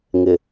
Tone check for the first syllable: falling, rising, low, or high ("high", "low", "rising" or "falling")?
low